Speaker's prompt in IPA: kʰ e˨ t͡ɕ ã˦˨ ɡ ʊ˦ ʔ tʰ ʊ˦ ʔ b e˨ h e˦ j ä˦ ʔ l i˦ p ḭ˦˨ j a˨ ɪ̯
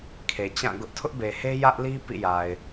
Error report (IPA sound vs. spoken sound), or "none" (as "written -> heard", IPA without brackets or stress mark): none